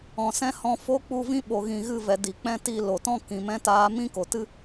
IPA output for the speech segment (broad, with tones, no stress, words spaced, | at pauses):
ɔ̃˨sɛ̃˦hɔ̃˧ fo˦k͡pu˦˨vĩ˦ ɓo˨ɣĩ˨ɣɨ˦˨vɛ˨ di˨k͡pɛ̃˦ ti˧ lo˨tɔ̃˦ kĩ˨mɛ̃˦taː˦ mĩ˦ko˨tɨ˦